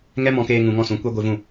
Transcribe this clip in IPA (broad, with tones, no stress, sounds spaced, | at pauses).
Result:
ŋ ɛ˦ m ɔ̃˧ k eː˧ ŋ ũ˧ ŋ ɔ̃˦˨ s ũ˨˦ kʷ ɛ˦ ɡʷ ɨ˧ v ũ˦˨